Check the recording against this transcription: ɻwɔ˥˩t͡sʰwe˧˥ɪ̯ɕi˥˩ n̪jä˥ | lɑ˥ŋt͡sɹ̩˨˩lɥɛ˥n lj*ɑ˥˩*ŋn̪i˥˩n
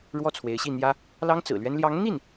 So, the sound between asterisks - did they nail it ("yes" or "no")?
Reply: no